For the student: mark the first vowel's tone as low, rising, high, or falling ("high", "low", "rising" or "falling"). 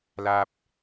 high